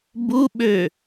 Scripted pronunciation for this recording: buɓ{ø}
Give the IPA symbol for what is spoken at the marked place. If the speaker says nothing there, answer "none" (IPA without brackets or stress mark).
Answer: ø